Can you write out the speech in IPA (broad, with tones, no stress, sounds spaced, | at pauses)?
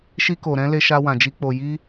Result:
ʃ i˧ k o˨ ɾ ɛ̃˧ l e˧ ʃ a˧ w ã˨ d͡ʒ i˧ k͡p o˨ j i˧